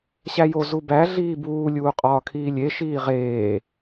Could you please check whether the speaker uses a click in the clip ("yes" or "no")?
no